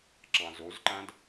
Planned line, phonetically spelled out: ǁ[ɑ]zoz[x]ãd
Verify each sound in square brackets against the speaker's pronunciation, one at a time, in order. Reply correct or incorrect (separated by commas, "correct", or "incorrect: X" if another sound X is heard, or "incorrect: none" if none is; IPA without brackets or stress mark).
incorrect: ɑ̃, incorrect: ǃ